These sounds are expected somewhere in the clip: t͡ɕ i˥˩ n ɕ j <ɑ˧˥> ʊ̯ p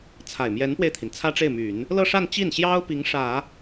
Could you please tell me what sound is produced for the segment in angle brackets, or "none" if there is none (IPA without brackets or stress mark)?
ɑ˥